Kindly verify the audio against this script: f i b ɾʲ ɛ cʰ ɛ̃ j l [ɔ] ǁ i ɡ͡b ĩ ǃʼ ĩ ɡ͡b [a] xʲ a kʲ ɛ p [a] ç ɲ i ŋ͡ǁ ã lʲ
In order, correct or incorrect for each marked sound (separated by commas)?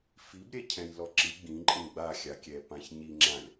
correct, correct, incorrect